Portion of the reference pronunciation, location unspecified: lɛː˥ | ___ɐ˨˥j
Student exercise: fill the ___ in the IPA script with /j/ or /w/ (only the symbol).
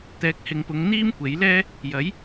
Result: j